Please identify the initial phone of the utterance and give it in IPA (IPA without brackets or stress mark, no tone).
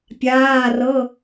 pʲ